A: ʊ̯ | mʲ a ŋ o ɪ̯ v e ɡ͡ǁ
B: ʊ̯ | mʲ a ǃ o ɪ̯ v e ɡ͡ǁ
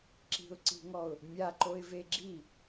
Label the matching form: B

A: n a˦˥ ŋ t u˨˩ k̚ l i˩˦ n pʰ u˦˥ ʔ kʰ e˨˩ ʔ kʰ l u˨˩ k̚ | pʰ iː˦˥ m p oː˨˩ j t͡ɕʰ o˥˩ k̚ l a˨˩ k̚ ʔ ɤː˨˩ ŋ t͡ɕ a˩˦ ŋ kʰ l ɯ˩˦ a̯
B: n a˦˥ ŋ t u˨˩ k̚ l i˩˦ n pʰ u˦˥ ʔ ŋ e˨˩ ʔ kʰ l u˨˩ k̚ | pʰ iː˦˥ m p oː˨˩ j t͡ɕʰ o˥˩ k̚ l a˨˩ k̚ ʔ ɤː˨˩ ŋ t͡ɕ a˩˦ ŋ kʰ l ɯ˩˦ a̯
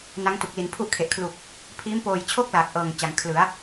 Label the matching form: A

